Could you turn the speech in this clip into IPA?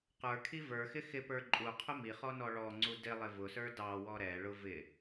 q ə˞ kʰ i v ə˞ x ɪ x ɪ p ə˞ ǃʼ u qʰ ʊ m i χ ɔ n ɔ ɭ ɔ ŋ͡ǀ u d ɪ lˠ ɪ v ʊ s ə˞ d ɑ w ɔ ɾ ɛ ɭ ʊ v ɪ

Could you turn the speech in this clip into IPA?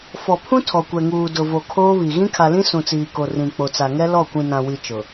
f ɔ˨ pʰ ũ˦ tʰ ɔ˨ kʷ ɛ˨ ŋ uː˨ d ʊ˨ v o˨ kʰ oː˦ β i˨ ɣ ĩ˦ kʰ a˨ l ĩ˦ s ũ˨ t͡s iː˨ k o˨ r ĩ˨ k͡p o˨ t͡s a˨ ŋ ɛ˦ l ɔ˦˨ kʷ ĩ˨ n ã˨ w i˨ t͡ʃ ʊ˨

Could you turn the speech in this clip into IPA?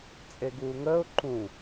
t͡sʼ e ɡ uː ŋ əː ʊ̯ ǃ ũ

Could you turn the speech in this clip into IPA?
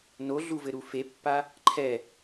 n o ɮ u v ɘ ɾ u f e pː a | ǃʰ ɛ

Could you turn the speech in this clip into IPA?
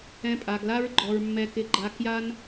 ɛ̃˧ pʼ a˨ ɡ l a˦ ɹ ɡ͡ǃ ɔ˨ ɹ mː ɛ˧ k ɪ˧ ɡ͡ǃ a˧ k j a˦ n

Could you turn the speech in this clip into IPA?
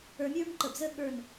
ə˞˧ mʲ ə˞˥ m ǃ ə˧˩ b z ə˥ ɠ ə˞˥˧ n

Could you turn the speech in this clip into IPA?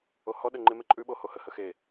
o h ɔ ɗ ə ŋ͡ǃ ɪ m e ǃʼ ʉ ɓ o h o h ə h ə x e

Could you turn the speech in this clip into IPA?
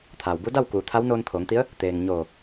t̪ʰ aː˩ w b u˧˥ d a˥˨ w k uː˩˧ t̪ʰ a˧˥ w n oː˧ n t̪ʰ oː˩˧ ŋ t̪ i˧˥ ə̯ | t̪ eː˩ ŋ ɲ oː˧˩

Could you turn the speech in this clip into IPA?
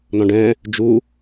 n ɔ̃ ɖ ɛ̃ | d͡ʒ u

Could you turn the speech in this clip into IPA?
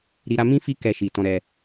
ɾ i˨ ɾ a˧ m ĩ˦ f i˦ k ɛ˧ ʃ i˨ t ɔ̃˧ ɾ ɛ˧

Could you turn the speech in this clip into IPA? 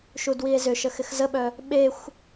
ʃ u d w i e̯ z ʏ ʃ ə x ɪ x z ə ɓ œ | ɓ e xʷ

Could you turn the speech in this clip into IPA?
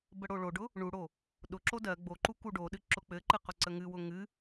b ə ɽ o ɭ o ɖ ʊ | ɳ u ɽ o | ɗ ʊ ǁ o d ɜ ɡ͡b o ǃ u k u ɖ o ɗ ɨ ǁ ʊ k͡p ɘ ǃ ɨ q ʊ ǀ ə ŋ ɨ w ʊ ŋ ɨ

